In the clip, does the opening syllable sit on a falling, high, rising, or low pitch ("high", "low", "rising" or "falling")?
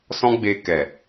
high